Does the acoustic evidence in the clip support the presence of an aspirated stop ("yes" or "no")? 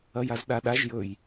no